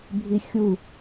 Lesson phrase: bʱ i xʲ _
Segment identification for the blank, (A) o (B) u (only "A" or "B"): B